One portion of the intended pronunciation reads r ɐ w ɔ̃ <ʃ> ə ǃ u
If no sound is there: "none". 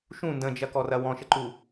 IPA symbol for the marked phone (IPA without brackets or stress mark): ʃ